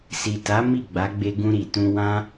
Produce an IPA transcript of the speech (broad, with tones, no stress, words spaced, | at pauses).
si˨ta˨˦ mi˦˨ɡ͡ba˨˦ɡ͡be˧ ɡũ˧ɾi˨tũ˧ wã˦